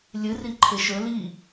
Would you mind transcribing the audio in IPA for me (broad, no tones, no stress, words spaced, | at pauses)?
lʲɨri ǃʰeʃɵ li